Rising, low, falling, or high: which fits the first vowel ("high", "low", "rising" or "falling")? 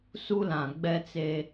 high